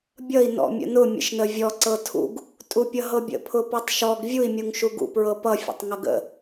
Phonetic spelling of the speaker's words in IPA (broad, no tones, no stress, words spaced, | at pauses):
bʲʌi̯ nɔ̰mʲə̰nʊ mʲə̰ʃnəvʲɔ ǀɤtʰṵɡ | tʼupʲʌɦɤbʲə̰ pʰʊpɔtˤʃɔɡ vʲui̯ mʲuŋʃuɡṵ pɹɤpʌ fʲə̰tˤŋʌɡə̰